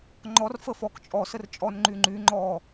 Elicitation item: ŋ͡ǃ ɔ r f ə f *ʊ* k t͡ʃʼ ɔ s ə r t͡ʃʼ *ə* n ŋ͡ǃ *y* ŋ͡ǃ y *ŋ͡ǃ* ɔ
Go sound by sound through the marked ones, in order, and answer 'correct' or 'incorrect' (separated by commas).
incorrect, incorrect, correct, correct